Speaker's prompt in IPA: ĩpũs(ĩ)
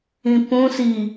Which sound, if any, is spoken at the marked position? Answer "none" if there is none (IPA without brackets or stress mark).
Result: i